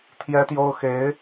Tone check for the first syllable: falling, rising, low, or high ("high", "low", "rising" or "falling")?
high